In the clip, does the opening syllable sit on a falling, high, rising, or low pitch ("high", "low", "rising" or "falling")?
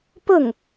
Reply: falling